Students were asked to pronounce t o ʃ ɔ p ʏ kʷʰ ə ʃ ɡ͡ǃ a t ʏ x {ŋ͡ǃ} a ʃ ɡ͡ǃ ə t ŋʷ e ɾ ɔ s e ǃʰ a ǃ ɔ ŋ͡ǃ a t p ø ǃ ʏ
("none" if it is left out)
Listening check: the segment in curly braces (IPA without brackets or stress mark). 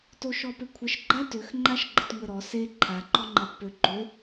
ŋ͡ǃ